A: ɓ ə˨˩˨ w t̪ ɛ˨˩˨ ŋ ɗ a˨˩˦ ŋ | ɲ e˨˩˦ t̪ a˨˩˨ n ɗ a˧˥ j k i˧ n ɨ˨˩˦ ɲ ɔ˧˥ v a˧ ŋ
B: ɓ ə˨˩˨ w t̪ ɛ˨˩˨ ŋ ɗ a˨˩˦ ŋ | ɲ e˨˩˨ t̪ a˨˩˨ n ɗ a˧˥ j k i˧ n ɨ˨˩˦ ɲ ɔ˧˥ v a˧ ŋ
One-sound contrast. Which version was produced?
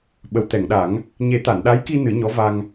A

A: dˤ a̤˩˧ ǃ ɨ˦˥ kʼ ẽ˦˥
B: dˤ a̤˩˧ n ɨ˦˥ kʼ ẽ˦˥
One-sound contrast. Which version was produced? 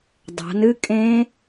B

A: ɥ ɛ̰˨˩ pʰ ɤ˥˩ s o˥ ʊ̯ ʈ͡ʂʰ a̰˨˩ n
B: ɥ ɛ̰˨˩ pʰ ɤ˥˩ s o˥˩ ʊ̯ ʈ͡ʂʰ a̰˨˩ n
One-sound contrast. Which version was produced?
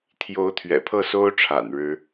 A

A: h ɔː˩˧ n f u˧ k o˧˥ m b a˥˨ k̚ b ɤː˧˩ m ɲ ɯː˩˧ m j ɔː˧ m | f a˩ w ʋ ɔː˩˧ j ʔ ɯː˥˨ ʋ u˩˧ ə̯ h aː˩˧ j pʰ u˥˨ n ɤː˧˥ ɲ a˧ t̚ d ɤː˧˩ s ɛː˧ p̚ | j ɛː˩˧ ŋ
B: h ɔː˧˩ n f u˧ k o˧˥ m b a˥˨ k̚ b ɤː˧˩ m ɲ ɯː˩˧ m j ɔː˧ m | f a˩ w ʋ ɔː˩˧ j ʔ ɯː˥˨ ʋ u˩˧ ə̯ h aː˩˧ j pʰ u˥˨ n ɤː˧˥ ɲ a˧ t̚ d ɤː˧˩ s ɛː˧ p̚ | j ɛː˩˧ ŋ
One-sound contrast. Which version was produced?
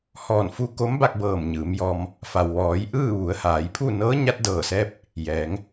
B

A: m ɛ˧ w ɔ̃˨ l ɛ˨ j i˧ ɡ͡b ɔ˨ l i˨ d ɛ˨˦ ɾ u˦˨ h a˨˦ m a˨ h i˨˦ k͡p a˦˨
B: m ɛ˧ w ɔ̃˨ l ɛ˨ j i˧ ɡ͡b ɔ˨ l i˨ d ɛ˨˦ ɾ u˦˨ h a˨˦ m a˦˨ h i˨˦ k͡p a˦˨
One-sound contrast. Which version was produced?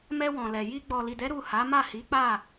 B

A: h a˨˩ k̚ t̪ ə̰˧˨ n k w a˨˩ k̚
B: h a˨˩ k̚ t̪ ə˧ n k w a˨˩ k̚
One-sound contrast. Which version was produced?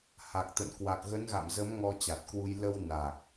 A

